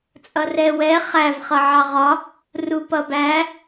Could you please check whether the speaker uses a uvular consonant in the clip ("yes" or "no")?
yes